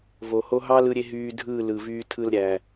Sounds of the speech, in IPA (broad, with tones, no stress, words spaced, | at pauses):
vo˨ho˦ ɦɑ˦lɯ˧ɾʲe˧ ɦyː˧dʱɯː˦˨ lɯ˨vyː˧tʰɯ˧l ɾʲæ˨